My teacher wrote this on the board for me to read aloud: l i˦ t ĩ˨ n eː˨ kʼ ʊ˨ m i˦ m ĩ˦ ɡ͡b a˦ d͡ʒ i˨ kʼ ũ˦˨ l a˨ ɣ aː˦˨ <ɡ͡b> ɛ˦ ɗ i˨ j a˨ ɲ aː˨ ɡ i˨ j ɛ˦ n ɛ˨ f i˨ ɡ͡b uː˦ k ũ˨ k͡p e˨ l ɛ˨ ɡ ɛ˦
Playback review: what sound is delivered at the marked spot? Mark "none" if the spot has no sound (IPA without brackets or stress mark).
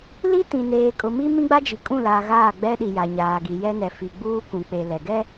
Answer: ɡ͡b